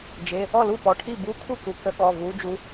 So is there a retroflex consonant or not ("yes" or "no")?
yes